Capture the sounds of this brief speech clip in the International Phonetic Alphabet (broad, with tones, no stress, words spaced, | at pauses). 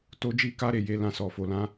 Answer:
to˧d͡ʒi˧ ka˦ɾe˦˨je˧lã˧ sɔ˨fo˨lã˨˦